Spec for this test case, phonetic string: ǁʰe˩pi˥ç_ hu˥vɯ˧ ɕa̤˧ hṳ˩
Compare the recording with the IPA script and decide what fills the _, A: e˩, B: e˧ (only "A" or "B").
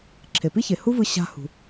A